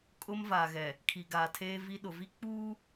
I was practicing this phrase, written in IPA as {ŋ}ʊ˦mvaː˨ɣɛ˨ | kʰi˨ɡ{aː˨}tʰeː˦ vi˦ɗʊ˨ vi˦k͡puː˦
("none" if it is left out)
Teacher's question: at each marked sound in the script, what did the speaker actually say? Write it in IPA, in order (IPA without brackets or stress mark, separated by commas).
kʼ, aː˨